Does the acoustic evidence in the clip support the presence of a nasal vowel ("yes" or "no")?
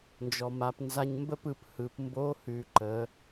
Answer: no